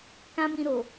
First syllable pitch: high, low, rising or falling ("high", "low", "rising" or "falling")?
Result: high